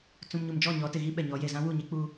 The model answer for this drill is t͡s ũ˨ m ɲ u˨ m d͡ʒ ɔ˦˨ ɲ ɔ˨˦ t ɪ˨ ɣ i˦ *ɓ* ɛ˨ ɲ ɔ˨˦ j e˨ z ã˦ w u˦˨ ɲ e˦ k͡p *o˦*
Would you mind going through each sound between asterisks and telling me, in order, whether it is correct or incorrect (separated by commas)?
correct, incorrect